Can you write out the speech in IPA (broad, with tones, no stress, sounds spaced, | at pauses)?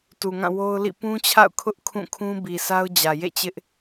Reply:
t u˨ ŋ ã˦˨ w o˦ ʊ̯ l ḭ˦˨ p ũ˦ t͡ɕʰ a̰˦˨ ʊ̯ kʰ ʊ˦ ʔ kʰ ũ˦˨ kʰ ũ˦ b i˨ s a˦ ʊ̯ d͡ʑ ä˨ j ḛ˦˨ t͡ɕ ɪ˦ ʔ